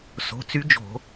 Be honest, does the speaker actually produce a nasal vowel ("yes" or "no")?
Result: no